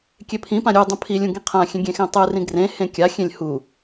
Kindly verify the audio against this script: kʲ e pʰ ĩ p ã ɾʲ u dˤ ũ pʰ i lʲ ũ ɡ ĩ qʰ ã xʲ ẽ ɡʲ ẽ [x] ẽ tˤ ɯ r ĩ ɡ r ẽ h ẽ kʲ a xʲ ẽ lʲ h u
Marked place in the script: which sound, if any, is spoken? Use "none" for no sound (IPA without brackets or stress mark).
x